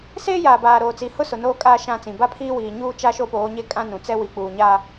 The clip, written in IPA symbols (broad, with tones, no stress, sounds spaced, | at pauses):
s eː˦ j aː˨ b aː˨ ɾ oː˨ t͡s i˨ h ʊ˦ s ʊ˨ n oː˦ kʼ aː˦ ʃ ã˦˨ t͡s ĩ˨ b a˦ pʰ iː˦ w iː˨ ɲ uː˦ t͡ʃ a˦ ʃ o˦ p oː˨˦ ɲ e˦ kʼ ã˦ n ũ˨ t͡s ɛ˦ w i˨ k͡p uː˨ ɲ a˦